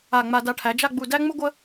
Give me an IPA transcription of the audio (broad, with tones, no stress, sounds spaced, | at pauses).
a˧˩ ŋ͡m a˧ d a˧ ʈʰ æ˩˧ d͡ʒ a˥˧ ɡ͡b u˧˩ d æ˥ ŋ͡m u˥ ɡʷ ə˥